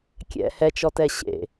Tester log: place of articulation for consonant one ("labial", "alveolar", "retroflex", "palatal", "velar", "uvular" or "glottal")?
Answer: velar